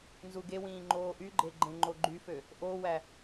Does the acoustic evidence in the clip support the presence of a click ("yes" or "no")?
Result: yes